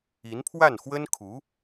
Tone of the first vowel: rising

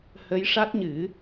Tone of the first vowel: rising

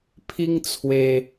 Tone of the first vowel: high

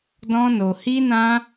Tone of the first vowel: high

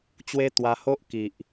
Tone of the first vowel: high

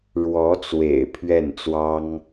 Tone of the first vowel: rising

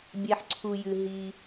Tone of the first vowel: low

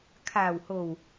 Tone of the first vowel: low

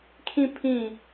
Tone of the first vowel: falling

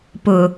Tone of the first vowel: low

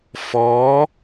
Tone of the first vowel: rising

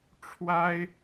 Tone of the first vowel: high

